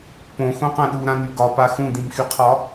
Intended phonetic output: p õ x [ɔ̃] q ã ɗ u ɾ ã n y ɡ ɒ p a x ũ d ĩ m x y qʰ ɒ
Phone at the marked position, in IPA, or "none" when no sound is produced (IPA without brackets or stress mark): õ